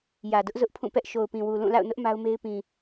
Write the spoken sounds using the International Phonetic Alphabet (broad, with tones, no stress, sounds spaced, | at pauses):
j ä˨ d ʊ˦ ʔ z ʊ˦ ʔ pʰ ũ˦˨ p ɛ˦ ʔ ʃ o˨ ʊ̯ p ĩ˨ w u˨ l ũ˦˨ l a̰˦˨ ʊ̯ n ʊ˦ ʔ m a˦ ʊ̯ m e˦ ɪ̯ p ĩ˨